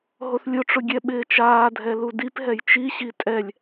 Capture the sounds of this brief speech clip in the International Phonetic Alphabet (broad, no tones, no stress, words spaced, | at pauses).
ɦoθlʲʊʈ͡ʂʊ ɡʲɛɓɪːt͡ʃaːdʱɛ ludipɦɛj t͡ʃiɕi tʼɛlʲ